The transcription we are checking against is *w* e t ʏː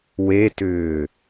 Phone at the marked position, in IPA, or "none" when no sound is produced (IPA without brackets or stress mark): w